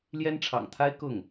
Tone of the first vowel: high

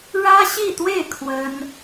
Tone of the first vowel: high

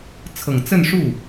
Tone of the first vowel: low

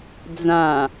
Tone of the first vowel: low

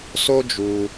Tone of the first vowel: high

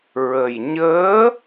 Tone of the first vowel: low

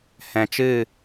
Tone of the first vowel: low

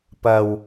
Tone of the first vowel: low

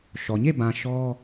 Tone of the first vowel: low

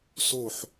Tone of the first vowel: falling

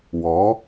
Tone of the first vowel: rising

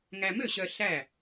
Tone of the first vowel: low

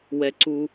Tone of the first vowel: low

